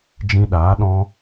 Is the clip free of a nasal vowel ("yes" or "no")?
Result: no